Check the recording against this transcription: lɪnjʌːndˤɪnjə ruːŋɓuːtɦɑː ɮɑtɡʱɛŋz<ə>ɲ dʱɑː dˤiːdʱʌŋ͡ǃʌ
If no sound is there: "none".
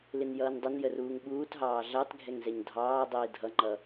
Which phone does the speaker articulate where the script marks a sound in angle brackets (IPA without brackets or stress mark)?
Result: ɛ